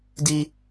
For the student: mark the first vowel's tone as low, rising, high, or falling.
high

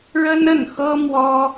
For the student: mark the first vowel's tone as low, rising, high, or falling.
high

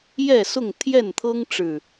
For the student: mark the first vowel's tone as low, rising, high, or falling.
falling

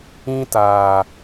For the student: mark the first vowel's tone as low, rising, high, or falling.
high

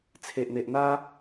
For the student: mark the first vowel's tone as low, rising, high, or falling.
low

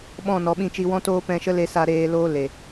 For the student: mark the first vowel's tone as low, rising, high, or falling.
falling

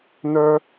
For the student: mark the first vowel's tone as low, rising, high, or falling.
high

